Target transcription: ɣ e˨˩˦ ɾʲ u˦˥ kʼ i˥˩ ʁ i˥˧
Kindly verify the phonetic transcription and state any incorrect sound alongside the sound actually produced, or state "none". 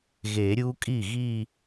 ʁ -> ɣ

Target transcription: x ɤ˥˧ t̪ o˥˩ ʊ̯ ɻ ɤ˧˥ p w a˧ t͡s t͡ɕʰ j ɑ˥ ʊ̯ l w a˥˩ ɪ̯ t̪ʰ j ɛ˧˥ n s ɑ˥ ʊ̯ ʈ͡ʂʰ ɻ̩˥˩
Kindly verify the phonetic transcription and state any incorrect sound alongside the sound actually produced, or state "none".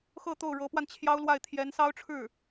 t͡s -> n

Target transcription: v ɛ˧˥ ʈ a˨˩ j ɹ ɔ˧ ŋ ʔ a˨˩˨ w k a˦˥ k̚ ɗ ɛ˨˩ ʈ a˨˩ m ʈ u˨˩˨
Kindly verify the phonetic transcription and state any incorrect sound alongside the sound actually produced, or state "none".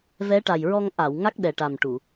k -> ŋ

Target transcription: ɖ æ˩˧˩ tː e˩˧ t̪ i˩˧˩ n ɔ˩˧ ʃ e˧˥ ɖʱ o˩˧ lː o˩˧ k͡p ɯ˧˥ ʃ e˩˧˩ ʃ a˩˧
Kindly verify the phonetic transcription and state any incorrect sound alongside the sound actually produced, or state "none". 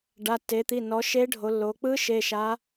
æ˩˧˩ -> a˩˧˩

